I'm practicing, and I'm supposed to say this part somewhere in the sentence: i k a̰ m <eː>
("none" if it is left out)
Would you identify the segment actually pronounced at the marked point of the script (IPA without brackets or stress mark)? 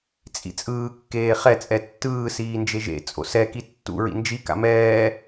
ɛː